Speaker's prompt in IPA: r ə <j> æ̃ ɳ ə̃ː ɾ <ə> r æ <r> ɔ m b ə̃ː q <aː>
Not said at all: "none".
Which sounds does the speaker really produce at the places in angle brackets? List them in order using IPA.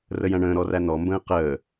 j, ɔ, n̪, əː

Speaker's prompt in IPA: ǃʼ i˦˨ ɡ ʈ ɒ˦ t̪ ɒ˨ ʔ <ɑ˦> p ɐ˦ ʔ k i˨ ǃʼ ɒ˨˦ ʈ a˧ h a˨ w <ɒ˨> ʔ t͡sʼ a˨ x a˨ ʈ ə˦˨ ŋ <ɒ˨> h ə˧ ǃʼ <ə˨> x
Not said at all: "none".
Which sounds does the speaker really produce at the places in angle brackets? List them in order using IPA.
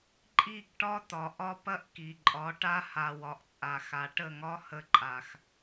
ɒ˦, ɒ˨, ɒ˦, a˨

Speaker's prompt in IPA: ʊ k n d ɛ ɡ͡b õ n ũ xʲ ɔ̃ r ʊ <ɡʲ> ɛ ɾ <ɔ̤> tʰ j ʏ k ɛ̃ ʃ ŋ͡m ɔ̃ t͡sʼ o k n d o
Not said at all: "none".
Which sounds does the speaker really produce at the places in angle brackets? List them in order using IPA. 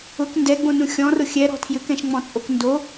xʲ, ɔ̤

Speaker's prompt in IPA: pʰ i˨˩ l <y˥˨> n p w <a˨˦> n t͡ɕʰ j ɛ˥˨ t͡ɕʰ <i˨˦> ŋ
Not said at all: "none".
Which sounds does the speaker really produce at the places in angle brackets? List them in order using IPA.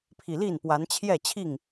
i˥˨, a˨˦, i˥˨

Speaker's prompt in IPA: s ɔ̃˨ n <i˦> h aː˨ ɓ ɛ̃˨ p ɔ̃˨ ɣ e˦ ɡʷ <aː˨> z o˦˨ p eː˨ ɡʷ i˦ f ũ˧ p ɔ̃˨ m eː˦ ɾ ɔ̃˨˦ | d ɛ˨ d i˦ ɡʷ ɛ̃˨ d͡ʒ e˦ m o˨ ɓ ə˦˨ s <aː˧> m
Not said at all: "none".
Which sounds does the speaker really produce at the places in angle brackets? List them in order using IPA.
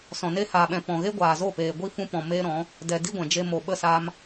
e˦, aː˨, aː˧

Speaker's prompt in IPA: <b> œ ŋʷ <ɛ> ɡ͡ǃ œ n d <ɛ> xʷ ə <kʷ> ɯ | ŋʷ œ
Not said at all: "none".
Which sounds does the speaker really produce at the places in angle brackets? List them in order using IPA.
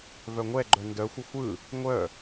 v, ɛ, œ, xʷ

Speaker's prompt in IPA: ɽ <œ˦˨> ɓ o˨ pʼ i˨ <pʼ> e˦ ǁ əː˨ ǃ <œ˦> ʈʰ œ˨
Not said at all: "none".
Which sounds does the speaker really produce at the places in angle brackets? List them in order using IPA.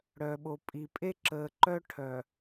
œ˨, pʼ, œ˦

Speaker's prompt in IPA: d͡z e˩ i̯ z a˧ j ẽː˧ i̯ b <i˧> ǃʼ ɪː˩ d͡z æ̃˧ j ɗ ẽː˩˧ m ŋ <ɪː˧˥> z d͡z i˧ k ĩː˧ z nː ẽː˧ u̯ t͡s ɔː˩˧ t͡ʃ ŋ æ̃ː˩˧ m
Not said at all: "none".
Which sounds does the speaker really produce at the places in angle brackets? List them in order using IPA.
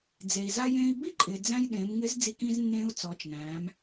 i˥, ɪː˧˥

